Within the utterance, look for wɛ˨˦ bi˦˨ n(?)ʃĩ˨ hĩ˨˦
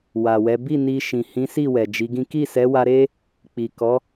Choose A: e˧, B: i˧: B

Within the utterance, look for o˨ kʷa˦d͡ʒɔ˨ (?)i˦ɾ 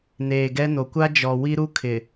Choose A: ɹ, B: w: B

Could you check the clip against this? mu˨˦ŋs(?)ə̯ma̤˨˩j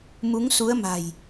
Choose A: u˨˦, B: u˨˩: A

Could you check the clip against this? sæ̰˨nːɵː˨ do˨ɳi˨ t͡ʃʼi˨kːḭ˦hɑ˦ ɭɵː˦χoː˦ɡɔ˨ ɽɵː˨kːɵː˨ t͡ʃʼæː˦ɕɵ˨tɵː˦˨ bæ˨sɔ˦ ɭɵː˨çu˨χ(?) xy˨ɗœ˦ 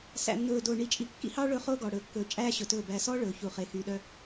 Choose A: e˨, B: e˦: A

